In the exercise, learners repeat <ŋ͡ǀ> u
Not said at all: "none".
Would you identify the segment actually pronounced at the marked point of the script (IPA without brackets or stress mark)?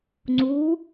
ŋ͡ǀ